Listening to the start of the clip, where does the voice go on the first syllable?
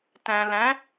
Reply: low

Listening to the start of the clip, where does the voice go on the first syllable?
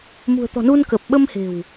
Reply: low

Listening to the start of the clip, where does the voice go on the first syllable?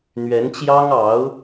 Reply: rising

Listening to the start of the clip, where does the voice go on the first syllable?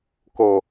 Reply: low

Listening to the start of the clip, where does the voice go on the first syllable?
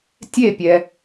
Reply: falling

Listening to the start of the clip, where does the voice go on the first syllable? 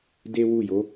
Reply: high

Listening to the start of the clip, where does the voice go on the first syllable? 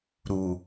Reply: low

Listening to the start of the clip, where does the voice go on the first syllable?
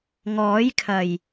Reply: rising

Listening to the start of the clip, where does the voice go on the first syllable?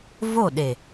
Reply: falling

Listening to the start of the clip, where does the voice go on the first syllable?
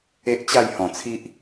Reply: high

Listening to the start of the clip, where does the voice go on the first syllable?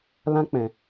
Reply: high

